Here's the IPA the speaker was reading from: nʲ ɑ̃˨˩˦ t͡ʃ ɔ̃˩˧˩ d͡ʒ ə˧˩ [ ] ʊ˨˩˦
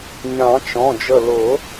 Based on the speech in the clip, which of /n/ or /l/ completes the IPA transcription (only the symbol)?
l